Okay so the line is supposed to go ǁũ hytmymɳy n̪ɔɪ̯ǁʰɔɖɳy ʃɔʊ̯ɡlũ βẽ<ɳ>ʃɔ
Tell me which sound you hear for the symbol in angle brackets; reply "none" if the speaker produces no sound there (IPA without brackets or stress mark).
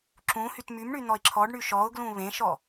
none